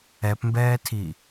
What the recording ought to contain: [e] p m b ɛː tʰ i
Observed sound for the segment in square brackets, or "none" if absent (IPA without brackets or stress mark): ɛ